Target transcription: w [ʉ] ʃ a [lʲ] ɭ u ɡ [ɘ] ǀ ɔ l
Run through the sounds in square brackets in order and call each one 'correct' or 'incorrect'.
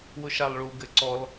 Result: incorrect: ʊ, incorrect: lˠ, correct

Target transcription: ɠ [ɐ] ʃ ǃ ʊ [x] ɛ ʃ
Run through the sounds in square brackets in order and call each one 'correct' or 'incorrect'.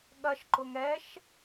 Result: correct, incorrect: ŋ

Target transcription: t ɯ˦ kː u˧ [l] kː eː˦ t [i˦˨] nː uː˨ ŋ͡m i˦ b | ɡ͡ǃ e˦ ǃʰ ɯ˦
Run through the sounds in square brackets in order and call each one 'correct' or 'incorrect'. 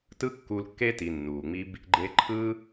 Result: correct, incorrect: i˨

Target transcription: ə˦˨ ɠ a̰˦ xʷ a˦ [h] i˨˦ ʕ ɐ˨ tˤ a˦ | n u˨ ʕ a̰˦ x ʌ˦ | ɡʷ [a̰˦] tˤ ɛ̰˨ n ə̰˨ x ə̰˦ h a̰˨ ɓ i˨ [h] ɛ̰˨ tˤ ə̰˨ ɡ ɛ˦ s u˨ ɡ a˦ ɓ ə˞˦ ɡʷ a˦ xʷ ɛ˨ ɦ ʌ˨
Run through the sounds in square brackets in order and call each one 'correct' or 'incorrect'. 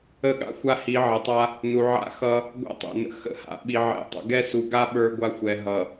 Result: correct, correct, incorrect: ʕ

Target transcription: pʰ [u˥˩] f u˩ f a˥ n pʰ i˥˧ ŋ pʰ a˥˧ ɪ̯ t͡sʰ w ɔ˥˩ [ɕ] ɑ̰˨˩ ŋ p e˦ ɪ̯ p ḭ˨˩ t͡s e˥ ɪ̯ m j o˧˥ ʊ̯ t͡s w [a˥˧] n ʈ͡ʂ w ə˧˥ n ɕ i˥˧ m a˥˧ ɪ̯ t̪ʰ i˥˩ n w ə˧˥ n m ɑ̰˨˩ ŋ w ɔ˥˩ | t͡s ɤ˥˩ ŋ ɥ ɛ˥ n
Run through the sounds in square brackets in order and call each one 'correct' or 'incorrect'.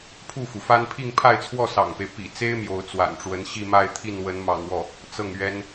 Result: correct, incorrect: s, incorrect: a̰˨˩

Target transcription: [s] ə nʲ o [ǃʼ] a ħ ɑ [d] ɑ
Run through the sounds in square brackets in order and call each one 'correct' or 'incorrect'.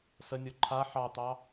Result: correct, incorrect: ǃʰ, incorrect: t̪

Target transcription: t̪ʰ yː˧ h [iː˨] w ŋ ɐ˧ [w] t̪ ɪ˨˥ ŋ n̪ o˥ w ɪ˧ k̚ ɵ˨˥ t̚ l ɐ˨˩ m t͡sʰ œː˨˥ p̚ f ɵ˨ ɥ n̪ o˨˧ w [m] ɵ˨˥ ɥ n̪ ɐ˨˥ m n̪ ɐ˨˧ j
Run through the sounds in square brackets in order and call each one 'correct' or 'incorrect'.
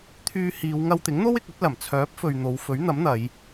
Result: incorrect: iː˨˧, correct, incorrect: f

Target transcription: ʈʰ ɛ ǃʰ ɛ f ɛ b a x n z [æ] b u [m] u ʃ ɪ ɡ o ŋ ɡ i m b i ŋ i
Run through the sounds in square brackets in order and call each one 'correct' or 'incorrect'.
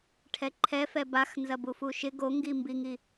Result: incorrect: ɐ, incorrect: f

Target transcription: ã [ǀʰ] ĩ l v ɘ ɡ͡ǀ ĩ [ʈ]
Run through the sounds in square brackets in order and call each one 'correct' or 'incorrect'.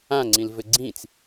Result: incorrect: ŋ͡ǀ, incorrect: t͡s

